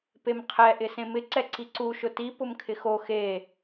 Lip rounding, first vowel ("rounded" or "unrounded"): unrounded